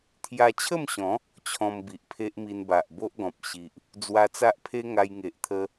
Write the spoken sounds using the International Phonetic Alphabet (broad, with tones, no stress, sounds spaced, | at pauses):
t̪ʰ j a˧ t͡ɕʰ ə˥˧ m ɕ ɔ̃˨˦ | t͡ɕʰ ɔ̃˧ m b i˨ ʔ pʰ e˦ ʔ m i˧ n b a˨ ʔ b o˦ ʔ ɡ ɔ̃˨ p̚ ɕ i˨ ʔ | d͡z w a˧ t͡s a˦ ʔ pʰ e˦ ŋ a˧ j ŋ e˨ ʔ t̪ʰ ə˦